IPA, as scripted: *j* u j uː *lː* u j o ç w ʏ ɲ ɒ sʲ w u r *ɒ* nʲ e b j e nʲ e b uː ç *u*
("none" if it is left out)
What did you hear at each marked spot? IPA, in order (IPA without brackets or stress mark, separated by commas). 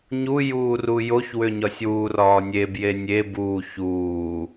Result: ɲ, r, ɒː, uː